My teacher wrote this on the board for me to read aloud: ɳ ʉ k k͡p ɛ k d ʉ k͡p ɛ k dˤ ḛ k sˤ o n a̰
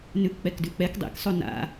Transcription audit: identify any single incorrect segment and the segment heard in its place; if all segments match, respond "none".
ɳ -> n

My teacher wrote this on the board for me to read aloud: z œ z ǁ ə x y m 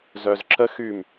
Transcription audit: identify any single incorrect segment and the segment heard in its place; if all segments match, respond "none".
none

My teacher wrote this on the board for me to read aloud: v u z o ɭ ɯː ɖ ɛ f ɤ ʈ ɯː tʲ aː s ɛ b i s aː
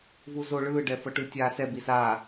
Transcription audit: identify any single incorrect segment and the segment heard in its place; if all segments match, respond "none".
none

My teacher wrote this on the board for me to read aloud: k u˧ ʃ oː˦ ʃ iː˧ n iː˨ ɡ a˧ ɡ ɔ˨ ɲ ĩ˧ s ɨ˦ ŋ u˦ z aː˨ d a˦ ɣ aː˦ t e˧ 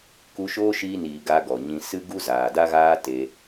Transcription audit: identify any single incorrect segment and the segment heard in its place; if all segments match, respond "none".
ŋ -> ɡ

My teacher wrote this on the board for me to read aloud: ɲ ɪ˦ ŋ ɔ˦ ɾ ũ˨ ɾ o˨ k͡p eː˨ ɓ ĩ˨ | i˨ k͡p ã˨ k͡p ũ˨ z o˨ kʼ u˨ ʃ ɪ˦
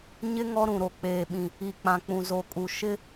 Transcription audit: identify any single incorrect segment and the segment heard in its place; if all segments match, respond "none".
none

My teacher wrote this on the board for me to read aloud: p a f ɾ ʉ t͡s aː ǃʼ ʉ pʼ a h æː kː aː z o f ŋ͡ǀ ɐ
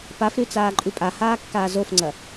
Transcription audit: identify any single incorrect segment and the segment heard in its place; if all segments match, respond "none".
æː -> aː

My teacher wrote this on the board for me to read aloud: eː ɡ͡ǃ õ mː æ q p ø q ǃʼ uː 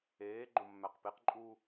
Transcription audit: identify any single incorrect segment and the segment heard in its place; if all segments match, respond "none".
ø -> e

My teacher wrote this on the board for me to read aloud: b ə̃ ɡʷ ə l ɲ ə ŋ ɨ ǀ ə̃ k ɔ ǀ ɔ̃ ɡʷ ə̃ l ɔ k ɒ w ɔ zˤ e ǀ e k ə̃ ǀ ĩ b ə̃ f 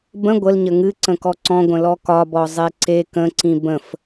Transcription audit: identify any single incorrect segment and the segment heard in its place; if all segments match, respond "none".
w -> b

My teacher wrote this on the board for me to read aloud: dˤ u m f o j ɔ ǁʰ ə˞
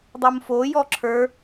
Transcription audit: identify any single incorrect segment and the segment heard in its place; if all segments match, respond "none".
none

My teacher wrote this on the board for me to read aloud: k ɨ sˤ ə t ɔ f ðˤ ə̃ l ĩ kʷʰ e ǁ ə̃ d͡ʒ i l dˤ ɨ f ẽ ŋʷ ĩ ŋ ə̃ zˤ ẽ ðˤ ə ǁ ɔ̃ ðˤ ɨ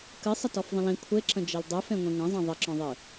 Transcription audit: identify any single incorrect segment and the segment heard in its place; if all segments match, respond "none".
none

